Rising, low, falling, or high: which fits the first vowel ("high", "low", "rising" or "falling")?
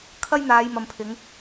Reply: high